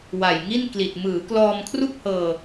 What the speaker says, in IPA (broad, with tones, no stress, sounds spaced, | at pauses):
w a˨˩ j ŋ i˥˩ n k l i˨˩ t̚ m ɯː˩˦ k l ɔː˧ m kʰ r u˥˩ k̚ h ɤː˧